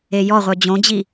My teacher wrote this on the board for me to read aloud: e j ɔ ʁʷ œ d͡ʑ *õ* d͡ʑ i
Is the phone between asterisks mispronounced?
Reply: no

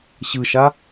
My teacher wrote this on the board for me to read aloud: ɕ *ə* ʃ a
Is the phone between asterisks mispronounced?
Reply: yes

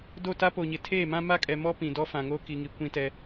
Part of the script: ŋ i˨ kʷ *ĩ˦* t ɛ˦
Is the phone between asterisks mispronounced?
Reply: no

